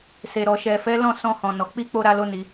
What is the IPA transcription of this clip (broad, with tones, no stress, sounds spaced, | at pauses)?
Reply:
s e˨ ɾ ɔ˨ ʃ ɛ˨ f ɛ˨˦ l ɔ̃˦˨ s ɔ̃˧ h ɔ̃˨ n ɔ˨ k͡p i˧ k͡p o˦ ɾ a˦ l o˦ n i˧